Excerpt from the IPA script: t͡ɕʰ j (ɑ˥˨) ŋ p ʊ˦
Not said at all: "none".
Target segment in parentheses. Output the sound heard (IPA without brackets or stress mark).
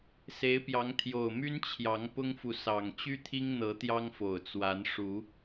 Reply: ɑ˨˦